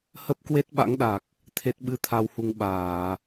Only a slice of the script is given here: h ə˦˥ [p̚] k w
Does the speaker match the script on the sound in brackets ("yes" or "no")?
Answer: yes